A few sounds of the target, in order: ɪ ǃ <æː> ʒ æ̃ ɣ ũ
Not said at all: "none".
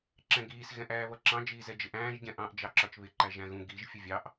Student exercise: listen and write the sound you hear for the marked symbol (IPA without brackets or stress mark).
æ